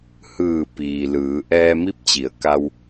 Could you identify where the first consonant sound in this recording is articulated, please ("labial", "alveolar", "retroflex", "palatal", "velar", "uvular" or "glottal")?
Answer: glottal